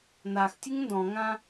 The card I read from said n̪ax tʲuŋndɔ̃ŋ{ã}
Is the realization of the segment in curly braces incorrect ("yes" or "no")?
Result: no